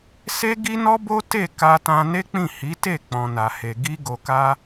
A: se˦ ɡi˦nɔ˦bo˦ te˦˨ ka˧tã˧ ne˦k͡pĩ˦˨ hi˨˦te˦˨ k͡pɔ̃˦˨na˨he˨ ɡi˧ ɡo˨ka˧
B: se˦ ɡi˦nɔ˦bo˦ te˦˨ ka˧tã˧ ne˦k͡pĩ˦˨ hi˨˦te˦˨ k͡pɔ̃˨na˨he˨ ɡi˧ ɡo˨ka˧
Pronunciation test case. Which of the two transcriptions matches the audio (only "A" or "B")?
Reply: B